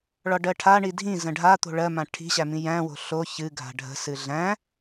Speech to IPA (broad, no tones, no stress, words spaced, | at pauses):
ɭɒɖɜʈʰa ɳidʱĩ zə̃ɖʱa t̪o̤ɭɜmã ʈʰi̤ɕæmĩ jæ̃wo̤ ɬo çɨɡʱa̤ ɖʱə̤ sɨɮæ̃